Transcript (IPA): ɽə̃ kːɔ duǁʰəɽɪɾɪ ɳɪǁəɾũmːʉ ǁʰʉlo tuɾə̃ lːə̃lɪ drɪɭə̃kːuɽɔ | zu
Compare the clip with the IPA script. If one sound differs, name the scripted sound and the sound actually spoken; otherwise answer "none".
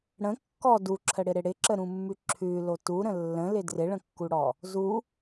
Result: ɳ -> ɽ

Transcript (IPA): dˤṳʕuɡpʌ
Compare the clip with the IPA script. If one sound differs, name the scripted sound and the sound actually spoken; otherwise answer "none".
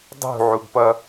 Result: none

